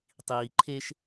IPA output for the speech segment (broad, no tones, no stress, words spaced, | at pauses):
tˤiː ǃʰeʃ